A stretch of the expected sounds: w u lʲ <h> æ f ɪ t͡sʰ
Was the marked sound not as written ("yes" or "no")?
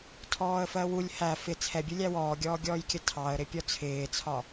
no